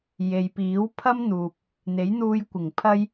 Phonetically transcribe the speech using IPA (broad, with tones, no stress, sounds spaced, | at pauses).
j e˨ j p iː˨˥ w pʰ ɐ˥ m n̪ uː˨ p̚ | n̪ e˨˥ j n̪ uː˧ j kʷ ɪ˨˩ ŋ pʰ ɐ˥ j